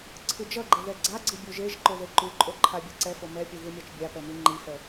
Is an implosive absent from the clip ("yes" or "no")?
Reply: yes